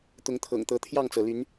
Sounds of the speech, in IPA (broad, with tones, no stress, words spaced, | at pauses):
t̪ʊ˨˦ŋt̪ʰɤ̰˨˩ŋt̪ɤ˨˦ t̪ʰjɑ˥˨ŋt͡sɤ˩ly˨˦n